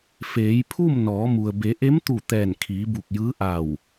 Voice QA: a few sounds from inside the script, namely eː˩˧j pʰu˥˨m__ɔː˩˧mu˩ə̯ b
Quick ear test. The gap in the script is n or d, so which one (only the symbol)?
n